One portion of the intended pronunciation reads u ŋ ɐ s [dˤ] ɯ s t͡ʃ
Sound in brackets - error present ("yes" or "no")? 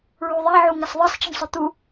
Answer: yes